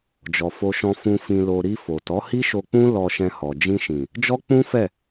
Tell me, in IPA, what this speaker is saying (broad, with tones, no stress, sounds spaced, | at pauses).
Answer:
d͡ʒ ɔ˨ f o˧ ʃ ɔ̃˧ f ũ˧ f ĩ˧ l o˧ ɾ i˧ f o˨ t ɔ˨˦ h i˦ ʃ o˧ k͡p ũ˦ l ɔ˧ ʃ ɛ̃˧ h ɔ˨ d͡ʒ ĩ˧ ʃ ĩ˨ | d͡ʒ ɔ˦ k͡p ũ˦ f ɛ˦˨